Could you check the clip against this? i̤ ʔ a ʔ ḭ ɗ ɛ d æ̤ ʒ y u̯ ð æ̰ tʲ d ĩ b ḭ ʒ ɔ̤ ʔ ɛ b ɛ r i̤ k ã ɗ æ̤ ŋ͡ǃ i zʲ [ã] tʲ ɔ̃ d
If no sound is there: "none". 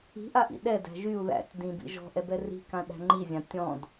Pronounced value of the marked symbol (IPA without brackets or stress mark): ã